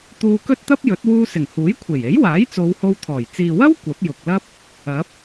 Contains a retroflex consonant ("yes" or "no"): no